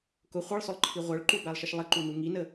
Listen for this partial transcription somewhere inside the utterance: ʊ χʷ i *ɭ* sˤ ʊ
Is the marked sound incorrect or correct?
correct